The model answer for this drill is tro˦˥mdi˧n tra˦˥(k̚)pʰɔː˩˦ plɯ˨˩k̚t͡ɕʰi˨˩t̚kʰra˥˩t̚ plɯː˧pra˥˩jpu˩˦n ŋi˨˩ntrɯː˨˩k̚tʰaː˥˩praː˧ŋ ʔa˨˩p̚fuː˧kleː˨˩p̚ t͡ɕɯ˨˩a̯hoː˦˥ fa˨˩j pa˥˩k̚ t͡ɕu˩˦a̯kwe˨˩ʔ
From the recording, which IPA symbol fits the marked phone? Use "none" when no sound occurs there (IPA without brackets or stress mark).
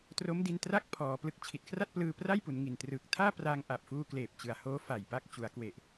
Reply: k̚